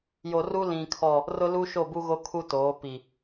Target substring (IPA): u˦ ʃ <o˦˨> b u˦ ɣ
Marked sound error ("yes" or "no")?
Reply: no